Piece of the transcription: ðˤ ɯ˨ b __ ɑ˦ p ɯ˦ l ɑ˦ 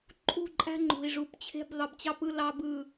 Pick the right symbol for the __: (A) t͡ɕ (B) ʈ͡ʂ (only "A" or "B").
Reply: A